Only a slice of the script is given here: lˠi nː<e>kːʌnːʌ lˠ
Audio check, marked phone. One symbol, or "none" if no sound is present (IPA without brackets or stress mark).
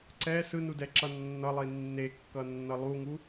e